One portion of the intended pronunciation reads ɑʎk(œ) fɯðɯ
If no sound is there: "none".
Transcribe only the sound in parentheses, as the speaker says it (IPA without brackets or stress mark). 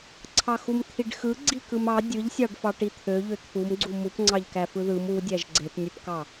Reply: æ